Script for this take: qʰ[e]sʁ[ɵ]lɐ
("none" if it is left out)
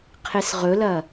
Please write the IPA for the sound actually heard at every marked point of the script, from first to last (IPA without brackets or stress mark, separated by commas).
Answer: e, ɵ